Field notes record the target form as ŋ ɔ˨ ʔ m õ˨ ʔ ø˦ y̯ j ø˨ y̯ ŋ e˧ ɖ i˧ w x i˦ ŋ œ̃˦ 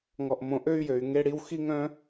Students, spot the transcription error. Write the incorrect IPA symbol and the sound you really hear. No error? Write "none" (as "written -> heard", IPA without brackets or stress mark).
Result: ɖ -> ɽ